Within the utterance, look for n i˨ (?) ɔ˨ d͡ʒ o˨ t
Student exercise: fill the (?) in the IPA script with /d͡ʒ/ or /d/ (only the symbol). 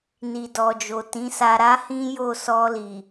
d